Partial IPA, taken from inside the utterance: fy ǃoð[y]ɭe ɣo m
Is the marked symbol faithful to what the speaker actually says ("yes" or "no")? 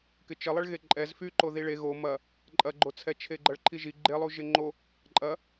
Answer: no